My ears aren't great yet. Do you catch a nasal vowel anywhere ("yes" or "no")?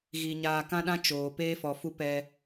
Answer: yes